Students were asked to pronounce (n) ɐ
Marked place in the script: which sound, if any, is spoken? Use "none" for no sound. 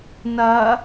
n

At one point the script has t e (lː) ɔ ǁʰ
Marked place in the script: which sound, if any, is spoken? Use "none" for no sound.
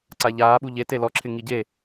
l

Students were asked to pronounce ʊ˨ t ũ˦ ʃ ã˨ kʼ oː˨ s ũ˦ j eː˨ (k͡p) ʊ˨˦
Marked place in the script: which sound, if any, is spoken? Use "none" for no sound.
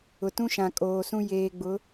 ɡ͡b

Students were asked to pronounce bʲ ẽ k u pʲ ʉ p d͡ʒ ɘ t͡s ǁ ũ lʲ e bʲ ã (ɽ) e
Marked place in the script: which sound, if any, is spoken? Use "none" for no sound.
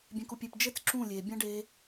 ɖ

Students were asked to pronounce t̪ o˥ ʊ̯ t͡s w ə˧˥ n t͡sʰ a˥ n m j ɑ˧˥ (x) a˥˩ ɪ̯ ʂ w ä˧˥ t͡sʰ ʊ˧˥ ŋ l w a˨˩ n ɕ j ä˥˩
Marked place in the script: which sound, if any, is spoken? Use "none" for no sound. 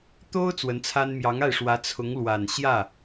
ŋ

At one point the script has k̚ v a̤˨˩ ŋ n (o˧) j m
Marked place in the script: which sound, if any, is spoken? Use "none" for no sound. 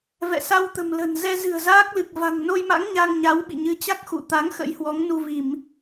o˧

